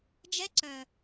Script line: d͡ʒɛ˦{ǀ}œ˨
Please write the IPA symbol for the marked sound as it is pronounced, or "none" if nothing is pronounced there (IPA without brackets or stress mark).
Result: ǀ